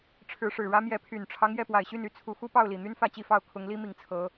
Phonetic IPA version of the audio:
ʈ͡ʂʰɻ̩˨˦ʂɻ̩˨˩ɻä˦ mjɛ˨˦pʰy˨˩nʈ͡ʂʰɑ˦ŋ jɛ˥˨pwa˨˩ɪ̯ɕy˥˨n y˦t͡sʰu˨˦xu˦ pɑ˥˨ʊ̯li˨˩n̪y˦n fä˥˨t͡ɕi˥˨fɑ˥˨ʊ̯ kʰʊ˨˦ŋli˦mi˨˩ŋ t͡sʰɤ˨˦

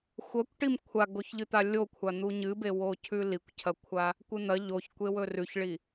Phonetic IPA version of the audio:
xʷɐkʷʈim kʷʰaɡoçʎɨt̪a lʲokʷʰa n̪uɲɨbewo cʰʉlikʷcʰɐkʷʰa | kʷɨn̪ɐ ʎoç kʷewɵrʉçɭi

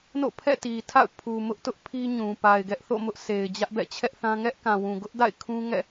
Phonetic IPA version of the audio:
no̰˦˨pʰɛ̰˦˨ti˨tʰa̰˦˨ʊ̯ pʰu˨mʊ˦ʔtʊ˦ʔ pʰi˦ɲũ˨ pa˨ɪ̯ɡɛ˦ʔθo̰˦˨mʊ˦ʔ se˨ɪ̯ d͡ʑä˦ʔbɛ̰˦˨t͡ɕʰɛ˦ʔ θã˦ ŋɛ˦ʔkã˨wũ˨ ɡʊ˦ʔda̰˦˨ɪ̯ kʰũ˦ŋɛ̰˦˨

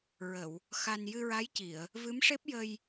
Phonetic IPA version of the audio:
ɹə˨˩˨w | xa˧n jɨ˧ɹa˧˥jci˨˩˨ə̯ | vɨ˧˥mʂe˦˥p̚jə˧j

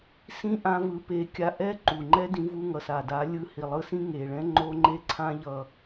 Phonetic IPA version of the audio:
sĩ˦ʔã˧vɯ˨˦pe˨˦ kʲa˧ʔɛ˦ ǃu˨ŋ͡ǃɛ˦dĩ˧vu˧ ŋʌ˨sa˨da˨˦ lʲɯ˧hi˨lˠɯ˧sĩ˦ ŋe˨ɭɛ̃˦ ŋ͡ǃo˦ ŋ͡ǃe˦ǀʰã˦ ʎʌ˦˨

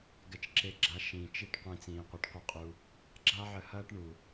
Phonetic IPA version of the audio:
ɡɛ˧t͡ʃǁe˧ɡ͡ǁa˧ ʃĩ˨t͡ʃi˦ʈ qʷĩ˧t͡sĩː˨ qʷɤ˧ʈqʷɛ˦qʼu˧ | ɡ͡ǁa˦ʕə˧hɐː˦ʈ ɳu˨

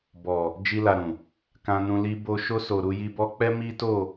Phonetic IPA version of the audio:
bɔ˨ | d͡ʒi˧la˨ ɾũ˨ | kã˧nũ˧ li˧bo˧ ʃo˧so˨ ɾu˧ji˧ bɔ˧k͡pɛ˦ mi˦to˦˨

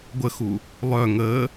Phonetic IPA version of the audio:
ɡʷəxu | lˠœ ŋəː

